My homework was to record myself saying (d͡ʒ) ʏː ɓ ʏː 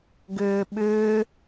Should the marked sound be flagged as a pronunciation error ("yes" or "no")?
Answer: yes